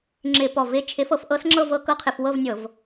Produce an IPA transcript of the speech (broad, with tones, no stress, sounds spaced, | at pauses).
ŋ͡ǁ ɪ˧˩˧ p ɔ˨˩ v ɪ˨˥ t͡ʃʰ ɪ˨˥ f ɤ˧ f ʔ ɤ˦˥ s ŋ͡ǁ ɤ˥˧ v ɤ˦˥ k ɤ˦˥ qʰ ɪ˧˩˧ f w ɤ˥˧ v nʲ ɤ˧˩˧ v